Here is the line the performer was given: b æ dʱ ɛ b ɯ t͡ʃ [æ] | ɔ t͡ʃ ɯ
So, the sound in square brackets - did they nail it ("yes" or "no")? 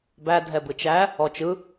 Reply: yes